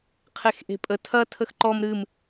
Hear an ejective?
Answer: yes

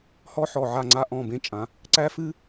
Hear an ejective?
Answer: yes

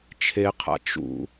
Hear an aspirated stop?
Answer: yes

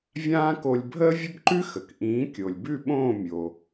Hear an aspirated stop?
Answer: no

